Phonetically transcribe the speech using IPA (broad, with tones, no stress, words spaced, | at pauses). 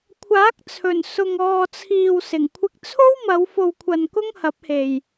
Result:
kʷʰaː˨˥k̚t͡sʰɵ˨˩n sʊ˨ŋɔː˨t͡sʰiː˨w sɪ˨˩ŋkʷʰɪ˧k̚t͡sʰo˥wmɐ˨˧w fo˨wkʷʰɐ˨n kʊ˥ŋhɐ˨˥p̚he˨j